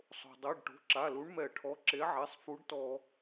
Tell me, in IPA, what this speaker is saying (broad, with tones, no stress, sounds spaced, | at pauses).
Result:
sˤ o̤˩ dˤ ɛ˩˧˩ ɖ ʈ o̤˩˧˩ ǁ a˩˧˩ l u˨˥ ɳ m ɛ˧˩˧ ʈʰ ɔ˩˧˩ ǁ e˨˥ ʕ ɛ˩˧˩ sˤ f u˨˥ ɖ t ɔ˧˩˧